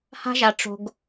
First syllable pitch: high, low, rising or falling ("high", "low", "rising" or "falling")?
high